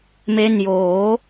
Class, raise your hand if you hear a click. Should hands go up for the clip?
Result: no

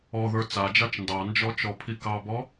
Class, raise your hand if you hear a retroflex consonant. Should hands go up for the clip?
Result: no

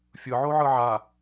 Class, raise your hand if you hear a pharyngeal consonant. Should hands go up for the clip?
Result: yes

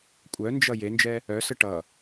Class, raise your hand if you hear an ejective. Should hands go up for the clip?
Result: yes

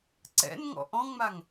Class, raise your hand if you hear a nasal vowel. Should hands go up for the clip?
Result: yes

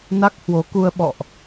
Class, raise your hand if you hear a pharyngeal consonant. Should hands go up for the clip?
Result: no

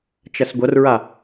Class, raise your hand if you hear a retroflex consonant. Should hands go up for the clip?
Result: no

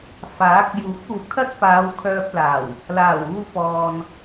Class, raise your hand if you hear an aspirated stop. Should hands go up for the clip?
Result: yes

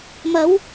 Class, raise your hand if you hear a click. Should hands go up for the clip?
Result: no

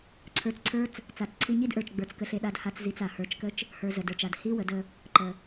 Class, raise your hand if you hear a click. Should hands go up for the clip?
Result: yes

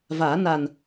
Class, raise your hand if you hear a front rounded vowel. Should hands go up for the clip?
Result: no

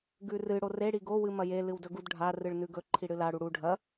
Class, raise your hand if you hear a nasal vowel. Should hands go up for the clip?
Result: no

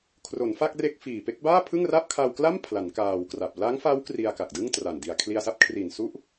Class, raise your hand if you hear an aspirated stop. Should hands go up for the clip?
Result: yes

